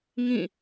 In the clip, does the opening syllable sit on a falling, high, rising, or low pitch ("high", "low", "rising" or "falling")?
falling